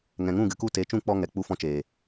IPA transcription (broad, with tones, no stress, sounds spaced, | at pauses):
ŋ ɛ̃˨ ŋ ũ˦˨ ɡ ɨ˨ k u˦˨ t e˨˦ t͡ʃ ũ˦˨ k͡p ɔ˧ ŋ ɛ˨ k͡p u˧ f ɔ̃˧ t͡ʃ eː˨